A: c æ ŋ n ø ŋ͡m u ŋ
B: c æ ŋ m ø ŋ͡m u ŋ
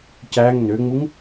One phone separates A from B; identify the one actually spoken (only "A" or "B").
A